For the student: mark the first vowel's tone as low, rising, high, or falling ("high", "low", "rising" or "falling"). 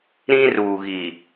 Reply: high